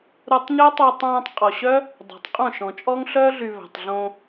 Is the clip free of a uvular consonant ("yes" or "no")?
no